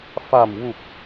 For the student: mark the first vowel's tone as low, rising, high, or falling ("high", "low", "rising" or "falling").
low